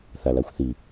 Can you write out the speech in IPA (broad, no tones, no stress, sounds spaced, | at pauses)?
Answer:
θ a l a xʷ θ i